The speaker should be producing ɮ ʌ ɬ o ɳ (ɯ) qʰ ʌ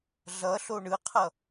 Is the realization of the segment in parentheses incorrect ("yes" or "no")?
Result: no